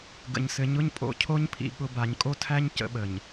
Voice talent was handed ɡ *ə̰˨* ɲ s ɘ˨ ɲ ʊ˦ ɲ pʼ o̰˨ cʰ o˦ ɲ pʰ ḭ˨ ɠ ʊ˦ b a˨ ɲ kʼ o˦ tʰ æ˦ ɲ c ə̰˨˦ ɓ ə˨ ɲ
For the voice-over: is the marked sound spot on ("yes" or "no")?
yes